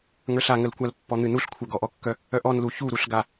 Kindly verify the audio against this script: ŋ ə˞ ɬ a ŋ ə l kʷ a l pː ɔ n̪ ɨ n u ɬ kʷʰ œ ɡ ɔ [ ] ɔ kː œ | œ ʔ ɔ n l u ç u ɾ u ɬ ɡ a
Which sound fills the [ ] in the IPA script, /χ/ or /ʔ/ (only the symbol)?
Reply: ʔ